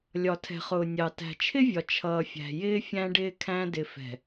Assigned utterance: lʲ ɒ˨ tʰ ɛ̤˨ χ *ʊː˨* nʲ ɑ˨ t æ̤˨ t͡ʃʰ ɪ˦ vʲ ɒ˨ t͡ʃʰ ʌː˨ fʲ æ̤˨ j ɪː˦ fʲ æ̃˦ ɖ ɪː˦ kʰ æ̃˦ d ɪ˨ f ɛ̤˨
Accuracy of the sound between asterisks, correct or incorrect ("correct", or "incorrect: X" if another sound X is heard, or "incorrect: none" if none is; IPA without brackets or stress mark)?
correct